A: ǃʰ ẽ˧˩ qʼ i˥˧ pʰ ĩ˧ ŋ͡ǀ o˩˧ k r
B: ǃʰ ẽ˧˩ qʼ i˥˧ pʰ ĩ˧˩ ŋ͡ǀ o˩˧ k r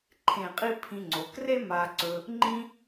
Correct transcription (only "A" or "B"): A